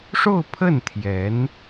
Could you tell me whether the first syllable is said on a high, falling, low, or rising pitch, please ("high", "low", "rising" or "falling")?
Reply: falling